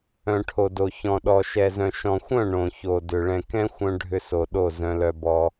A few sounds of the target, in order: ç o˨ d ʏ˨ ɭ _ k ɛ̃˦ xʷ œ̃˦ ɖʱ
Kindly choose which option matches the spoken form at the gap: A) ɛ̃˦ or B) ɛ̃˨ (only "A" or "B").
B